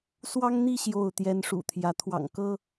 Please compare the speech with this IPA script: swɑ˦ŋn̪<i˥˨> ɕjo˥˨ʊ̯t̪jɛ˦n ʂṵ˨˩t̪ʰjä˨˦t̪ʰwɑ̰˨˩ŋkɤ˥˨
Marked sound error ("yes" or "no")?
no